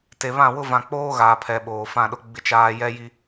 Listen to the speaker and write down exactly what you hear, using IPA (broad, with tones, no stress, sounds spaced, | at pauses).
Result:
t e˨ β ã˦˨ w ʊ˦ v ã˨ k͡p oː˦ ɣ aː˨ pʰ ɛ˨ ɓ oː˨ f ã˦˨ ɗ ʊ˦ ɡ͡b ɪ˦ t͡ʃ aː˦ j ɛ˦ j i˦